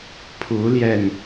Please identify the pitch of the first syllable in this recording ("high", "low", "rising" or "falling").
rising